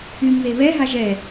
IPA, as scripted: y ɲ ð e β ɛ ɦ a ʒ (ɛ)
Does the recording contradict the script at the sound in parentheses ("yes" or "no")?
no